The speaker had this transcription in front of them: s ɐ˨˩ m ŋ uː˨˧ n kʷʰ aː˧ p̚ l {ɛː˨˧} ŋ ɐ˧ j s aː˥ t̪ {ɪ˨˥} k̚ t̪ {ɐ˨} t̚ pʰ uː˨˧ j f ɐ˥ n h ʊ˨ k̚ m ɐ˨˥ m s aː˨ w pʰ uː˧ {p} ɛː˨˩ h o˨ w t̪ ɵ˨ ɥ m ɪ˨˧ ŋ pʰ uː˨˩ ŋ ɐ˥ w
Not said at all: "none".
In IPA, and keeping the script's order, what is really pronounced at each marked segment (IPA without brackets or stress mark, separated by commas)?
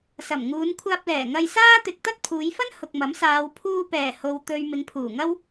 ɛː˨˩, ɪ˨, ɐ˥, p